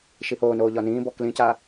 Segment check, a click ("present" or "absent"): absent